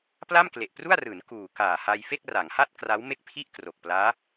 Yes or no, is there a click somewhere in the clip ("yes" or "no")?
no